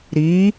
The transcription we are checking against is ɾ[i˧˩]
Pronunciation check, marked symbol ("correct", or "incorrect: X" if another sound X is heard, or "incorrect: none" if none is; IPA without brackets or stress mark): incorrect: i˩˧